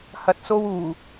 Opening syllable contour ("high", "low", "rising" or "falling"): low